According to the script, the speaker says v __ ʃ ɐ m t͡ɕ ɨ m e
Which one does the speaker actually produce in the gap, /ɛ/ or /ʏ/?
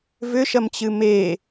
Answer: ʏ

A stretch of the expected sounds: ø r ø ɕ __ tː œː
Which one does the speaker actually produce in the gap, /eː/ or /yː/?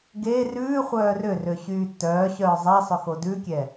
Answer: yː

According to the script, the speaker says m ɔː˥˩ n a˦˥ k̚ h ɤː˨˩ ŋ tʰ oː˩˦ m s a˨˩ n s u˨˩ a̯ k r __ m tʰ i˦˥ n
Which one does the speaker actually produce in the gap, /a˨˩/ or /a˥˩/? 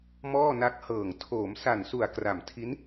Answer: a˨˩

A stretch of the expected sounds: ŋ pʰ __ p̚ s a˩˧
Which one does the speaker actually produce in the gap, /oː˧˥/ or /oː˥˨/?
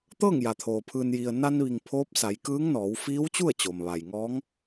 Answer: oː˧˥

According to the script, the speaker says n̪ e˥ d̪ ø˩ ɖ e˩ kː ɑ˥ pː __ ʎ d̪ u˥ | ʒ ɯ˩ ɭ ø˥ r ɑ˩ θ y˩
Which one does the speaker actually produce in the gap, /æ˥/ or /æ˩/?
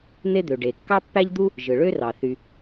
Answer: æ˥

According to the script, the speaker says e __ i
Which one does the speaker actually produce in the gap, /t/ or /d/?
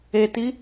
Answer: t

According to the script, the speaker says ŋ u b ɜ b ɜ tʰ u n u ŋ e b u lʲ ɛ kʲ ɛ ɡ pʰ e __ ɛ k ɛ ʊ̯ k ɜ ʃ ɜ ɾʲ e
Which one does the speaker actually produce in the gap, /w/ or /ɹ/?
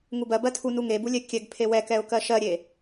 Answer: w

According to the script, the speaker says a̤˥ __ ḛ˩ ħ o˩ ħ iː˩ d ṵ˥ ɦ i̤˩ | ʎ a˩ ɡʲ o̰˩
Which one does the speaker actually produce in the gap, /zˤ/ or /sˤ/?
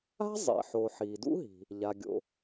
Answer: zˤ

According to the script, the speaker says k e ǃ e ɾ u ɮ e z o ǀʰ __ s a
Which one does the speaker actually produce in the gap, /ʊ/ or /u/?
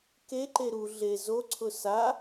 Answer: ʊ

